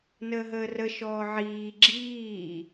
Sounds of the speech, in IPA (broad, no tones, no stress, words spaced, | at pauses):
nəːɦəːrə ʃɔːʕiː ɡ͡ǁiː